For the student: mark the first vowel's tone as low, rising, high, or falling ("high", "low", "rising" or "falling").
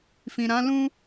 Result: low